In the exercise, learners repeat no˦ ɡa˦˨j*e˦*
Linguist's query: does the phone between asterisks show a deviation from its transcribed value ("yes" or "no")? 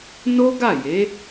yes